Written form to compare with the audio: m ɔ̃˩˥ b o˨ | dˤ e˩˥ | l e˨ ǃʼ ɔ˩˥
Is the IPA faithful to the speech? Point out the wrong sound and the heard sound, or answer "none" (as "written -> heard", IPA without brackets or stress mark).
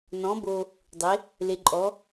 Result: m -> n